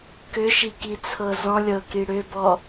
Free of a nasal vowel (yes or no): no